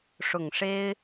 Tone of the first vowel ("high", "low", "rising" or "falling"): low